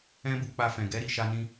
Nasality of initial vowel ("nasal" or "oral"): nasal